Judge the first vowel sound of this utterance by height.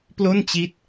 mid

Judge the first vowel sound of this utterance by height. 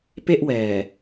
mid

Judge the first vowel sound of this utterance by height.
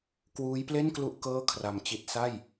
high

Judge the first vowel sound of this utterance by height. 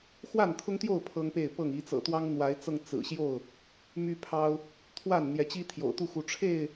low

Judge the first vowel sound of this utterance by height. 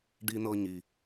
high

